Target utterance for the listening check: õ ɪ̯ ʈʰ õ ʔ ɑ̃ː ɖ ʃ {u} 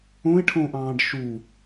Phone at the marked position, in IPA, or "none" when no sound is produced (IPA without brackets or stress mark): u